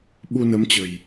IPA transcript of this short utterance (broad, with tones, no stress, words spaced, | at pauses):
ɓu˧nə˨˦mt͡ɕə̤˨˩j